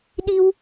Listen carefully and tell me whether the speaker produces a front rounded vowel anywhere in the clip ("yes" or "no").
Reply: no